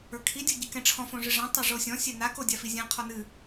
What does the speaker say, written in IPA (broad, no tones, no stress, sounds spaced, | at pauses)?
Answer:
ə˞ kʰ i dʲ o ɟ ɨ k ɛ̃ ʈ͡ʂʰ ɔ̃ f õ ʐ ɨ ʐ ɛ̃ tˤ ø ʐ o sʲ ɔ̃ sʲ ɛ n a k o dʲ a f i zʲ ɛ̃ qʰ ɔ n ɨ